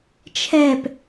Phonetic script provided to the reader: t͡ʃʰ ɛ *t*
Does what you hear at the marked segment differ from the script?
yes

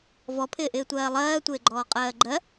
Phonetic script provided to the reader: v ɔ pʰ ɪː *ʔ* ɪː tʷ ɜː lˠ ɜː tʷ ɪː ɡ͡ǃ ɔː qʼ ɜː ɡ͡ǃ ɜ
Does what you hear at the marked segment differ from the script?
no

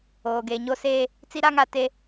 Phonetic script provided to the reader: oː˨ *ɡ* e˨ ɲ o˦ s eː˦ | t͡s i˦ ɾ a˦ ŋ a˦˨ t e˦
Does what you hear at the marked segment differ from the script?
no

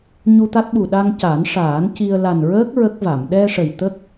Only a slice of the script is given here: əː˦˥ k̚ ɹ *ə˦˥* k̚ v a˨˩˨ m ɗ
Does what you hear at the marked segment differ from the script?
no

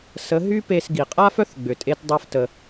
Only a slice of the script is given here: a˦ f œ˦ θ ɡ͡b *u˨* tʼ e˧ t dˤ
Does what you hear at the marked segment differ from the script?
yes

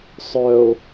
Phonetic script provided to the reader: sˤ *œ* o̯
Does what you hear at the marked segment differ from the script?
no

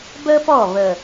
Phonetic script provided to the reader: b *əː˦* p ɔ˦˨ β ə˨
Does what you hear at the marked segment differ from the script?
no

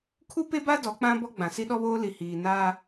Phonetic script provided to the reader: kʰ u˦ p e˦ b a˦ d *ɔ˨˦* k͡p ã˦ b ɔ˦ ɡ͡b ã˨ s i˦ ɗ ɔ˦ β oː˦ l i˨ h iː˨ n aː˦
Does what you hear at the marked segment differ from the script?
no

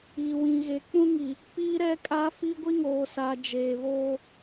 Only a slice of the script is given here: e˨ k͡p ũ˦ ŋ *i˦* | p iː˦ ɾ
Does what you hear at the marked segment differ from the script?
yes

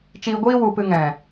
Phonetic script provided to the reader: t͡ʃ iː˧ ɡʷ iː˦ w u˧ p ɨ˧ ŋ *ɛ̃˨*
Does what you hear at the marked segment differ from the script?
no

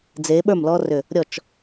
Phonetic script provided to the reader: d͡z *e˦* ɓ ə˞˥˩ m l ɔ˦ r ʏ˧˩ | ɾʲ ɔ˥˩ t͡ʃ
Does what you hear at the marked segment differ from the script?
yes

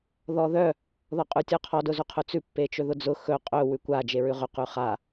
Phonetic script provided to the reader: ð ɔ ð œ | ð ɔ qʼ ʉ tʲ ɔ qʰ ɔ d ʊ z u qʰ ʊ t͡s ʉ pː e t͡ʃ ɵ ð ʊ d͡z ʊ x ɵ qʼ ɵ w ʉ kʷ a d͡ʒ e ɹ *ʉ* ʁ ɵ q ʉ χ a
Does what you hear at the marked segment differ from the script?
no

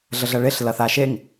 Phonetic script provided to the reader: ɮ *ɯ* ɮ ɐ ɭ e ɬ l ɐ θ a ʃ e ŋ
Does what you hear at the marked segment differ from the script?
yes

